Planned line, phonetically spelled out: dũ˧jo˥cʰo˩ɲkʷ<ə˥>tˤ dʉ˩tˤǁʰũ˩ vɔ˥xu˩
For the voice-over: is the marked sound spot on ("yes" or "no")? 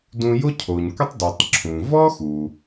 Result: yes